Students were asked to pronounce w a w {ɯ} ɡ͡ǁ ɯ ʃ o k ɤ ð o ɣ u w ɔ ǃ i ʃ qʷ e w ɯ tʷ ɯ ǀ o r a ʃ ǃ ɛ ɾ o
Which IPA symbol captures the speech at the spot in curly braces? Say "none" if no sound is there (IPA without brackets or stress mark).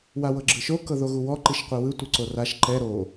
ɤ